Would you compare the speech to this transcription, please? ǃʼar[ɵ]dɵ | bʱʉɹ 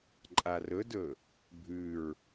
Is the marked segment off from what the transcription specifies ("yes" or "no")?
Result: no